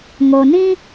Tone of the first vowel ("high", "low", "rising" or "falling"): low